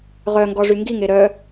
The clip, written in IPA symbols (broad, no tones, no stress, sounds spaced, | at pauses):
ʁ œ ŋ ɡ ɔ ʐ y ŋ ɡ i ŋ e ɾ œ